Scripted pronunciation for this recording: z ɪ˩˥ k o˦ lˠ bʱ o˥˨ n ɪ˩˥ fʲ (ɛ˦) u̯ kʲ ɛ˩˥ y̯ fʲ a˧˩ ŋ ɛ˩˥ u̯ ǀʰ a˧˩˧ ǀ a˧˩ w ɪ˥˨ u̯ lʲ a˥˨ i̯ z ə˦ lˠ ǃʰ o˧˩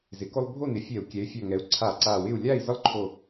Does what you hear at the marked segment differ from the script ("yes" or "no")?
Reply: yes